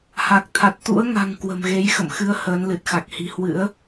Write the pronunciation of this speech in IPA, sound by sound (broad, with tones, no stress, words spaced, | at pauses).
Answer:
ha˨˩k̚t̪ʰa˨˩t̚ t̪ṵ˧˥ə̯ŋa̤˨˩ŋ kwə̤˨˩mɣe˨˦jxə̰˧˨mxɨ˨˦ə̯ həː˨˦nlɨ˨˩t̚xa˨˩k̚hi̤˨˩ hwɨ̰˧˥ə̯